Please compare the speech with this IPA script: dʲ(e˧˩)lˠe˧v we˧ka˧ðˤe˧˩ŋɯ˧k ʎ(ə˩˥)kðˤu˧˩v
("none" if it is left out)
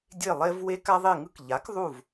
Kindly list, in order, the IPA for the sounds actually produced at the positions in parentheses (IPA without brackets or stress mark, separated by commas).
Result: e˧˩, a˩˥